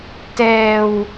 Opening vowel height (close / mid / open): mid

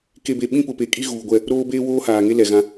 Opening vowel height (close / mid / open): mid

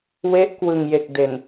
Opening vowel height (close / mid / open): mid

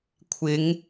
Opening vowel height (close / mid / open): close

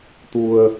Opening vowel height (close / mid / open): close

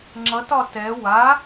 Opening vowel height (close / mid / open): mid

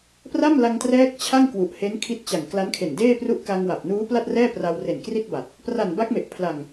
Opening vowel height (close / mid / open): open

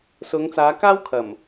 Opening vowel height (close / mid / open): close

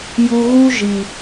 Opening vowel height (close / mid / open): close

